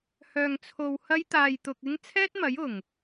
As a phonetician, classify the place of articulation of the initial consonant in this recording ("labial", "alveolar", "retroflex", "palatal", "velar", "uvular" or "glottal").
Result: glottal